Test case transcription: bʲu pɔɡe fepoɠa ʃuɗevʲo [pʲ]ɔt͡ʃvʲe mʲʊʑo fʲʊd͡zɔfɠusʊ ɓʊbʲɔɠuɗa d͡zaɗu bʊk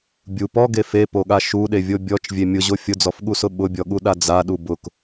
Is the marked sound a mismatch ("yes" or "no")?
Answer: yes